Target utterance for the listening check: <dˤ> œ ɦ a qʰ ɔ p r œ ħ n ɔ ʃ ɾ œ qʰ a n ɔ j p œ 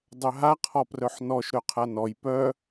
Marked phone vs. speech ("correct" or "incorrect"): correct